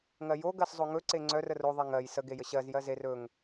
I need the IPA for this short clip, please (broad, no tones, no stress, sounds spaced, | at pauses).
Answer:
ŋ ɜ j o ɡ ɜ s zˤ o ŋ ɵ ǀ e ŋ͡ǀ œ r ə r o ðˤ e ŋ ɜ j s ə ɡ e j ə ɕ ɜ z j ɜ z e r ɵ ŋ